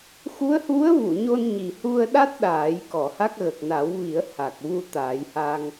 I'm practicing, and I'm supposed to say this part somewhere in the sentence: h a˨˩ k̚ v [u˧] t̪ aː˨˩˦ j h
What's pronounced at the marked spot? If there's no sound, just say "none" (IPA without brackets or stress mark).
u˧